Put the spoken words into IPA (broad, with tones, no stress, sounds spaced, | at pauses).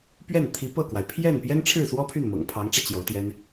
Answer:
p ɥ ɛ˥˩ n t̪ʰ i˧˥ p ɤ˥˩ k w a˩ ɪ̯ pʰ j ɛ˥˩ n p j ɛ˥ n ʈ͡ʂʰ ɻ̩˥˩ s w ɔ˥ pʰ y˥˩ n m ɤ̰˨˩ ŋ pʰ ɑ˧˥ ŋ ʈ͡ʂ ä˧ t͡ɕ j o˧˥ ʊ̯ t̪ j ɛ˥ n